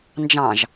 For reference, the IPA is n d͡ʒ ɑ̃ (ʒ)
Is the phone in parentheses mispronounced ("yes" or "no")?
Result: no